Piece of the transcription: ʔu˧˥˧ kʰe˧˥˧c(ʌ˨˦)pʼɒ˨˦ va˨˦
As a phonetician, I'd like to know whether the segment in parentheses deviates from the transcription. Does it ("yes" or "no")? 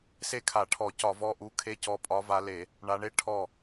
yes